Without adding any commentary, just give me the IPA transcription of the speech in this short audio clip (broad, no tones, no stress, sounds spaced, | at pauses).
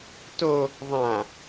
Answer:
t o | ðˤ ã